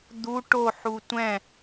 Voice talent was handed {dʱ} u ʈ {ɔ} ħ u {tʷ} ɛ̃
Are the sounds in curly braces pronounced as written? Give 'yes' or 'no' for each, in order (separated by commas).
no, no, yes